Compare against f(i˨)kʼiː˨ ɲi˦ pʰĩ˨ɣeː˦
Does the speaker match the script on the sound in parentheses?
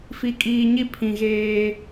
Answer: yes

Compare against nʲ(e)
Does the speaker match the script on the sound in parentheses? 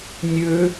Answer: no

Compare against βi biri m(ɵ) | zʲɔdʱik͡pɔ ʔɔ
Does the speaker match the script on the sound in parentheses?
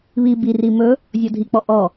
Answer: yes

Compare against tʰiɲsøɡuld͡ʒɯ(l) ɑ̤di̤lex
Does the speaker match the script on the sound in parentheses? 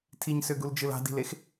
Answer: yes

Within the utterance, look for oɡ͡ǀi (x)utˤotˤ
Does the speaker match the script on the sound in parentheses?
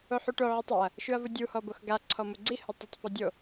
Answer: no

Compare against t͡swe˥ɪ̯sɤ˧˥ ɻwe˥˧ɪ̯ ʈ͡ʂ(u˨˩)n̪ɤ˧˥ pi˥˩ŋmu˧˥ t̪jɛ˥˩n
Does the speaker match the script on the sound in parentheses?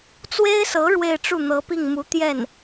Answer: no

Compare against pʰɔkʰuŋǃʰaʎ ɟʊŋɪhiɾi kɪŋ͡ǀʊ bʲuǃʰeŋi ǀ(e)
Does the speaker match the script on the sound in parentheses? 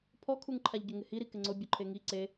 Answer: yes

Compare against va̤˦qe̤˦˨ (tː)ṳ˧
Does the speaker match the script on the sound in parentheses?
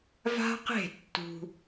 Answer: yes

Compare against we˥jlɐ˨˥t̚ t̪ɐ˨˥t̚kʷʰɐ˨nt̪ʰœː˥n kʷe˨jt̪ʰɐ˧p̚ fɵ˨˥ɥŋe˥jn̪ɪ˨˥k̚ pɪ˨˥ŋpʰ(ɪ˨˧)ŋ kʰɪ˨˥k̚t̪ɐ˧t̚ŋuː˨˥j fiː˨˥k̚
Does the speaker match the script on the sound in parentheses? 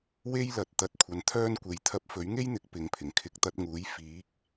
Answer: no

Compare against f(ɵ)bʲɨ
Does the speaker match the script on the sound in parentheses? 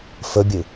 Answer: yes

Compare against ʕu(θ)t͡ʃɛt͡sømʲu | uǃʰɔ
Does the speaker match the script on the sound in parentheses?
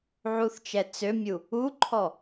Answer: yes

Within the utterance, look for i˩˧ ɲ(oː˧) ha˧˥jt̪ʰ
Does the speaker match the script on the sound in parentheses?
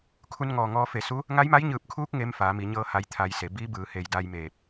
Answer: no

